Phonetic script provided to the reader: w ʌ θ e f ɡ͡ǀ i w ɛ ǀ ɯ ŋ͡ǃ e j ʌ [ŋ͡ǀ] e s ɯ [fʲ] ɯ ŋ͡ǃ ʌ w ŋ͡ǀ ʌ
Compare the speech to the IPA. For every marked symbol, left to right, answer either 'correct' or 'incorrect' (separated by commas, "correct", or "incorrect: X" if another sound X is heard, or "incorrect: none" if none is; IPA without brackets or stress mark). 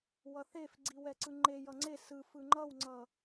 correct, incorrect: f